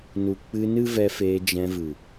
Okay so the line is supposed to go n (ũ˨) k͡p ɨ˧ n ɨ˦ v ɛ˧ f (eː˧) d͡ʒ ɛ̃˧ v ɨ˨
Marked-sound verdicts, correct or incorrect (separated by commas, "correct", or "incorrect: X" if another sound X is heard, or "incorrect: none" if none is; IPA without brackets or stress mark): incorrect: u˨, correct